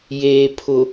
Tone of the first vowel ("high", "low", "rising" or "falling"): low